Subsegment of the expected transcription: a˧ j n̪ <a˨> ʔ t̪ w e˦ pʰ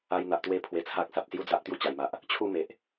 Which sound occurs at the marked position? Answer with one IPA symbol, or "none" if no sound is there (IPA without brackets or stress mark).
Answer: a˨